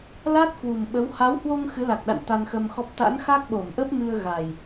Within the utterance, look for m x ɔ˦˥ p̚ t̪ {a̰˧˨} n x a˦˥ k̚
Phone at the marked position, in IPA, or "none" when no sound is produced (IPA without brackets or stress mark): a̰˧˥